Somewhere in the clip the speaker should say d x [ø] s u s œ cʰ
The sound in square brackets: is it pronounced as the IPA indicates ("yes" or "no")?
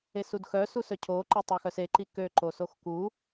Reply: no